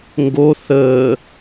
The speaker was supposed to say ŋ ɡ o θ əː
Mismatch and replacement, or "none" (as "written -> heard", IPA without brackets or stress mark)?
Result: none